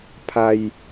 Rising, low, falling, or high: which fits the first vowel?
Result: low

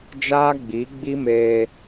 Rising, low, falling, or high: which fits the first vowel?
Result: high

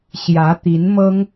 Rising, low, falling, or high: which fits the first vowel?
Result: rising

